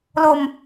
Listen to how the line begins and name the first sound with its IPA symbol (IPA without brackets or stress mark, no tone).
l